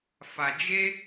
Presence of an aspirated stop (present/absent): absent